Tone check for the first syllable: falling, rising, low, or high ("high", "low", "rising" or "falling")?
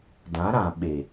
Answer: rising